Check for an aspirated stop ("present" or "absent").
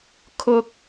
present